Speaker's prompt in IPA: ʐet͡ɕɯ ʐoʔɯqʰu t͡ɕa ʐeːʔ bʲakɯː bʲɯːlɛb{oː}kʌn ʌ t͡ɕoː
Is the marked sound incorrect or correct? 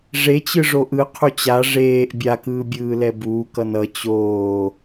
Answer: incorrect